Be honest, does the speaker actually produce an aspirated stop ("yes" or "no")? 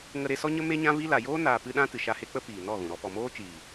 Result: no